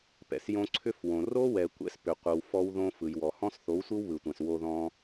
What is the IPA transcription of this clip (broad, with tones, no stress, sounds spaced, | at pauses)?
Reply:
p ɛ̰˨ s j õ˧ ǀʰ ʏ˦ f w õ˨ r o˦ w ɛ˨ kʷ ɛ̰˧ s p ʏ˨ qʷ ɯ˨ w f ɔ˧ w ð õ˧ f ɯ˨ j w ɔ˨ h ɔ̃˦ s θ o˨˦ w sʷ ɯ˦ w β ɯ˨ tʷ ɛ̃˨ s w o˧ ð ɔ̃˧